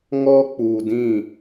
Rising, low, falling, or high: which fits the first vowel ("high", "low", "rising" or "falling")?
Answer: high